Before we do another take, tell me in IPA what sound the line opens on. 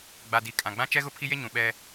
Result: ɡ͡b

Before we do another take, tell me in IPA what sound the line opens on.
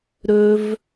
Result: ɾ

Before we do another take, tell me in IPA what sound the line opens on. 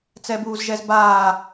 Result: t͡s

